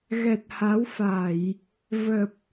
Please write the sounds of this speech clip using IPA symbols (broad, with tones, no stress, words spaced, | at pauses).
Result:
ɣɛ˨˩t̚ha˨˦wfa˧˩˨j | və˨˩p̚